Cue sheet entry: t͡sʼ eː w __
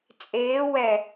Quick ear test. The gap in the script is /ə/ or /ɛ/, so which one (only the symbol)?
ɛ